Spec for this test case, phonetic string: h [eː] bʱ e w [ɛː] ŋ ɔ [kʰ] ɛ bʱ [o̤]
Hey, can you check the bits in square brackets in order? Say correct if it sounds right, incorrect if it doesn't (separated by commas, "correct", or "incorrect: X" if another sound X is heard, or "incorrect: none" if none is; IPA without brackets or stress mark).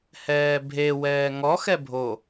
incorrect: ɛː, correct, incorrect: x, incorrect: o